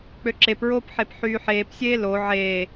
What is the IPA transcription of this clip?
k͡pøǁepɹoːp ħepħyːħeːpsʲeː lo ʕeː

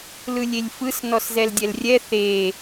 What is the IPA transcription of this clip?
lɯlʲelʲfɯs nɔszɛldʲɛlrʲɛ θe

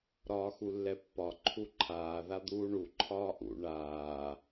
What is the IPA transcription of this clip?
ɾɒːxulːɛpːɒ ǃʰuǃʰaː ðad̪uːɳu ǃʰɒːʔṵ ɳaː

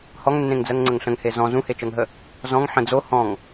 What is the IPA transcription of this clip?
hɔŋnːẽŋd͡zɜŋŋ͡ǀəŋ ɬə̃ŋhe zɔ̃ zũhet͡ʃɜŋɦə | zɔ̃ŋ ħə̃ d͡zo hɔ̃ŋ

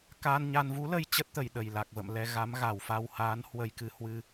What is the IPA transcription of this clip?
kaː˧nɲa˧n vu˨˦lə˧j t͡ɕə˦˥t̚t̪ə˨˩j ɗə˨˩jla˨˩k̚və̰˧˨m lɛ˧ɣa˨˦mɣa˨˩wfa˧w haː˨˦nhwə˧jkɨ˧hwɨ˧

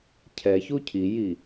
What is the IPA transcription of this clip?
cʰɛçu cʰiji

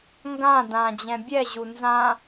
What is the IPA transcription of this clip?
ŋɡã dã d͡ʑɛ̃bʲɛʑu nzã

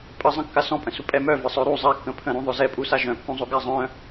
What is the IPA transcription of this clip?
pʼəzˤə̃ kːasɔ̃pʼə̃su pʼɛmœ vəsˤœɾu zˤakːə̃ pʰə̃ɾũðˤœ zɛpʼu saʒœ̃kːũzˤo ɡazˤœ̃

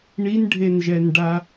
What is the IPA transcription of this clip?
ɳinɖʱenʒɛnɖa

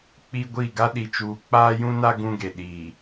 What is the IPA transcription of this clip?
k͡pi˦ɡʷi˦˨ ɡa˦ɗi˨t͡ʃuː˨ k͡paː˦jũ˦na˦ ɡũ˦ɡe˨ ɗiː˨

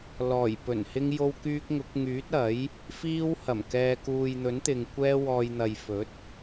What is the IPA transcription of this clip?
lɔː˨˩jpɵ˨˩nhɪ˧ŋ jo˧wkyː˧k̚ŋʊ˨˥k̚ ŋyː˨˥t̚ɐ˨˥j | fiː˧whɐ˨˩mkɛː˨kuː˨j n̪ɵ˨˥nt̪ɪ˨ŋ kʷɛː˧wɔː˨jn̪ɐ˨jfɵ˨˥t̚

